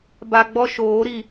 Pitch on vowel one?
low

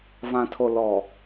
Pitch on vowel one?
low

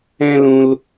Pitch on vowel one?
high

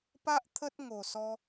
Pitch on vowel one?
high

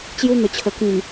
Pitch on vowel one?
high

